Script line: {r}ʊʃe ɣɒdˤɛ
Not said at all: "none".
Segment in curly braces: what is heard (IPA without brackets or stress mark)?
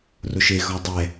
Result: r